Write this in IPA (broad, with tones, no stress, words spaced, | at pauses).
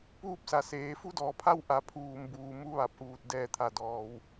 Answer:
puː˧p̚sa˩ seː˩˧ fu˧˥dɔː˩˧ pʰa˧w ʔa˩˧ pʰuː˩mbuː˩ mu˧ʋa˧˩p̚ʔuː˧˩t̚ dɛː˧˩t̪ʰa˩ dɔː˩w